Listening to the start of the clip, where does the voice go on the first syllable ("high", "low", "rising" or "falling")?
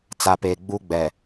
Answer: low